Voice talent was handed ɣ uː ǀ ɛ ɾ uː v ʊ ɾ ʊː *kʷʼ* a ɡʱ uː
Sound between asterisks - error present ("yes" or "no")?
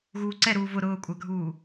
no